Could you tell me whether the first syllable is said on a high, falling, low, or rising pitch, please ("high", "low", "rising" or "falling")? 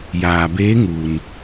low